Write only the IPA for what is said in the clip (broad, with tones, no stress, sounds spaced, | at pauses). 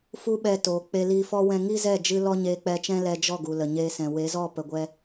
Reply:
f u˦ ɓ ɛ˧ t oː˨ k͡p e˧ l i˧ f ɔ˦ w ɛ̃˧ ŋ i˦ z ɛ˦˨ d͡ʒ ɨ˧ l ɔ˦ ɲ eː˧ k͡p ɛ˧ t͡ʃ ɛ̃˦ l ɛ˧ d͡ʒ ɔ˦˨ ɡ u˨ l ə˨ ɲ eː˧ s ɛ̃˨ w e˨˦ z ɔ˦˨ p ə˨ ɡʷ ɛ˧